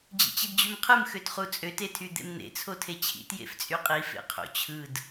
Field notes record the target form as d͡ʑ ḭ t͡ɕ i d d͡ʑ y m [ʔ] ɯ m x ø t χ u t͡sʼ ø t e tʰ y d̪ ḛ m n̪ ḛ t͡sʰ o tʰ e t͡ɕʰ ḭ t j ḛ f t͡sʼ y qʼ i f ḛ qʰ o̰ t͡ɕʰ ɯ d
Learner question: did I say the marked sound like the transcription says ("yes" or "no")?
no